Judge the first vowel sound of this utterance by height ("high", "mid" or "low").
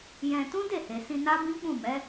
mid